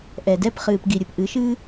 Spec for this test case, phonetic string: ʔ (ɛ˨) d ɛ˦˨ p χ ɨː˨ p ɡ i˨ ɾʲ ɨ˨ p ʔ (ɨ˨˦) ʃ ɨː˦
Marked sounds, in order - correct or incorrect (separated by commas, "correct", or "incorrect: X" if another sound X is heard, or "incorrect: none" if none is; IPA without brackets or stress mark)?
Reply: correct, correct